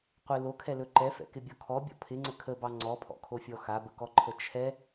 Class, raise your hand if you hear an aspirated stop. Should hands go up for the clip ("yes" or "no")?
yes